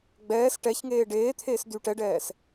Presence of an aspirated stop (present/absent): present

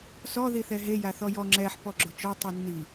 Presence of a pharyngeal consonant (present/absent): present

